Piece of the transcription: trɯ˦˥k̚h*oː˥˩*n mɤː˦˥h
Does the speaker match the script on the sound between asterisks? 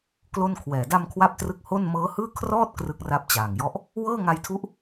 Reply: no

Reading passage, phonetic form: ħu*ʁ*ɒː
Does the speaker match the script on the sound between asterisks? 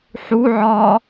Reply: no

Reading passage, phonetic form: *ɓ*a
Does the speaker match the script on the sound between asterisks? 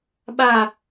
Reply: yes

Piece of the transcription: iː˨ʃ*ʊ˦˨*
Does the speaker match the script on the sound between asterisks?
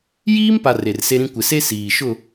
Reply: yes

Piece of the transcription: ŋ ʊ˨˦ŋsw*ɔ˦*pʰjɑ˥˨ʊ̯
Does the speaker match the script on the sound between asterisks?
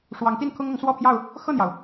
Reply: no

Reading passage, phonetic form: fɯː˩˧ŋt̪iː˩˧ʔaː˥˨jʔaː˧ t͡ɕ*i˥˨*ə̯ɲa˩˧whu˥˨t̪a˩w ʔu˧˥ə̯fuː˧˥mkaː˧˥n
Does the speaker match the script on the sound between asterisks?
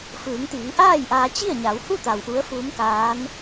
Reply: yes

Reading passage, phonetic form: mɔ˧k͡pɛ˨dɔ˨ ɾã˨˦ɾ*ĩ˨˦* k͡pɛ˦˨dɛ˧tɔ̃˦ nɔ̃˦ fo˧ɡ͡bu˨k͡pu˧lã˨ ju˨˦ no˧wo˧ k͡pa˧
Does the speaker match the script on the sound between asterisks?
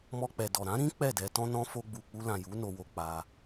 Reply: no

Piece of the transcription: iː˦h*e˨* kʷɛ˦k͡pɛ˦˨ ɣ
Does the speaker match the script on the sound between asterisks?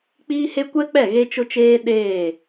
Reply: no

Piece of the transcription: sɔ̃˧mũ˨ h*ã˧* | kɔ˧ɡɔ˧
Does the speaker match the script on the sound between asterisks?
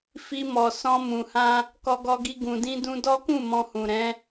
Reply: yes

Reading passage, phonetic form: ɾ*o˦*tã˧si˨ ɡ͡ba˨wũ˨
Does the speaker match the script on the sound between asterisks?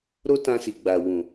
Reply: yes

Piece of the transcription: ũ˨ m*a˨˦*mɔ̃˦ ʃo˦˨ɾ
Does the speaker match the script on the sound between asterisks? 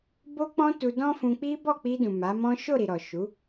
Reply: yes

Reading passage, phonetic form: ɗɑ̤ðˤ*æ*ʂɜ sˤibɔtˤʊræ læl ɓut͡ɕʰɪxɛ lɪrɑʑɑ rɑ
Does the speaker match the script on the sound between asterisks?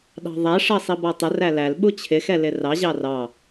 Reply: yes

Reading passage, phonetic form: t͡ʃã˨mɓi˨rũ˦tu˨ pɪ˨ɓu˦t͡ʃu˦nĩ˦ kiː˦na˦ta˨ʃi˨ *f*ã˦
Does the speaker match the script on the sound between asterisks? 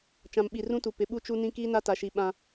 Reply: no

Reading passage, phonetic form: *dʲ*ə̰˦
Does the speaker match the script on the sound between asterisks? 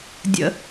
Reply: yes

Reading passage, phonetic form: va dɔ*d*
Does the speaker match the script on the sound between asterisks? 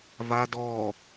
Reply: no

